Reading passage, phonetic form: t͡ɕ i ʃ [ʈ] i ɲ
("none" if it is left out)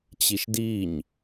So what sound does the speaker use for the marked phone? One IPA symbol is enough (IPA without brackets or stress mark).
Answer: d